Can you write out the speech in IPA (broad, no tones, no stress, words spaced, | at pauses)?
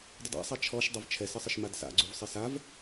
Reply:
dˤɪda̰sˤa t͡ʃʰɔʃ dˤɛvt͡ʃʰɛsɪsˤɪʃ madsa̰ɡ͡ǀuvsˤɪ sav